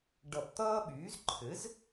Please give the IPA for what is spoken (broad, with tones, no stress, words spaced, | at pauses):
ɖʌ˨˩˦pt̪ʌː˦ɓyː˩˥z ǃʰɘ˩˥z